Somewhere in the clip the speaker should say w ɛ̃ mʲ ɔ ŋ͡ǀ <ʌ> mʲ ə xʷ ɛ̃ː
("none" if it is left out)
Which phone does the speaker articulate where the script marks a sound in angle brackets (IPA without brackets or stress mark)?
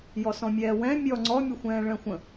ɔ